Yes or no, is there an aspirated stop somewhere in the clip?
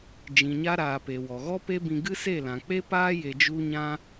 no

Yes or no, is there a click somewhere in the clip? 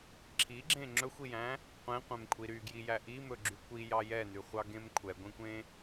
yes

